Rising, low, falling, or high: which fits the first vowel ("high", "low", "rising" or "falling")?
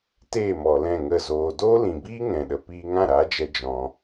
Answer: falling